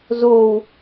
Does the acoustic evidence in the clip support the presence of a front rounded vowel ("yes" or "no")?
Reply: no